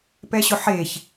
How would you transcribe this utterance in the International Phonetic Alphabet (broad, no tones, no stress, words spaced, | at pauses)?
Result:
pɛɕʊħeç